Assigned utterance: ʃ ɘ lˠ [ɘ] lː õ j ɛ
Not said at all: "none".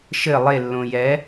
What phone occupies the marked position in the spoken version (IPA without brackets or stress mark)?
e